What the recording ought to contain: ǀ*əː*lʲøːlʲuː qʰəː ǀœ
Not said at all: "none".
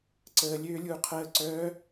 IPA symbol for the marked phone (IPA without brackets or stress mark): əː